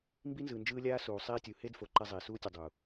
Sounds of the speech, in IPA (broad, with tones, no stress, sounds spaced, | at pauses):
m b i˦ n z ɯ˨ n d͡ʒ ɯː˦ lʲ aː˦ s uː˨ sˤ iː˦ tʲ u˨ h e˦ d f o˨ ǃ ɛ˦ zˤ iː˨ s uː˦ tʲ ɯ˨ dˤ u˨